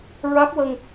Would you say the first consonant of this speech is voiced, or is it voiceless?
voiced